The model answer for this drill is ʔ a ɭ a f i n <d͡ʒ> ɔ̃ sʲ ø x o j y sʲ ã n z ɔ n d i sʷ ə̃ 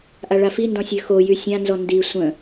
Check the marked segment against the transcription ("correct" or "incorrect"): incorrect